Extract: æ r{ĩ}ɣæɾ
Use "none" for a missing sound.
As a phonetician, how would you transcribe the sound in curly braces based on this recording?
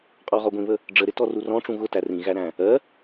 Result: ĩ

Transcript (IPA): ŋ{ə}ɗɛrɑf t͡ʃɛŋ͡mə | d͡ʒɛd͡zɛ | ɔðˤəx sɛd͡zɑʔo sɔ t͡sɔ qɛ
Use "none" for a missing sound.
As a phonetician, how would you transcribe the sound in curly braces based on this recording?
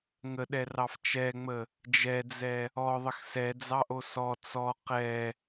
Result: ə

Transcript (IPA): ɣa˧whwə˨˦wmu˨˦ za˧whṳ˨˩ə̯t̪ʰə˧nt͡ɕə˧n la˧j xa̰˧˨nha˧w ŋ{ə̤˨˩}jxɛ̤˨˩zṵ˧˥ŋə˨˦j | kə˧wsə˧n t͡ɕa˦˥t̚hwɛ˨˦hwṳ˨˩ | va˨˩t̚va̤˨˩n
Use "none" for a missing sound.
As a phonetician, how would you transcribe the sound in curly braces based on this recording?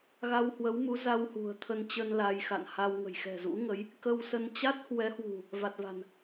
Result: ə̤˨˩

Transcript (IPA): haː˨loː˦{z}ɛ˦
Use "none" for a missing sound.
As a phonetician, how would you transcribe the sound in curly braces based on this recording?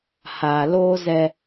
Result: z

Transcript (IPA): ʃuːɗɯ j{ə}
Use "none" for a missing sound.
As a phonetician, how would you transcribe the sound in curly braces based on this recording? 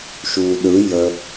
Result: ə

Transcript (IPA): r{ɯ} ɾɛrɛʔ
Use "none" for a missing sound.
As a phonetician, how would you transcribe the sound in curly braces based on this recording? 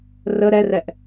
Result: ə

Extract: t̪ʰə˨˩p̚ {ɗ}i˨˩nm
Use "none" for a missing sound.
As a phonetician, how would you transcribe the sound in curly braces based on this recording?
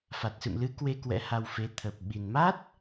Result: ɓ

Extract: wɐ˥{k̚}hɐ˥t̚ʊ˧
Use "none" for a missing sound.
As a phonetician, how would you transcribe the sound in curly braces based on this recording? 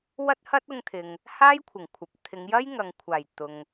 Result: t̚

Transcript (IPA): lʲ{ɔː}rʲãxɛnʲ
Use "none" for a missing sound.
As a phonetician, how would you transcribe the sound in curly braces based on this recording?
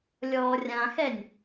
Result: ɔː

